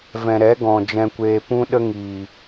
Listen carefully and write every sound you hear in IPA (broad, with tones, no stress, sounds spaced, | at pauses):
v ɛ̃˨ ɾ ɛ˨˦ ɡ ɔ̃˨ d͡ʒ ɛ̃˧ kʷ eː˧ p ũ˦ ɗ ə˦ ŋ iː˨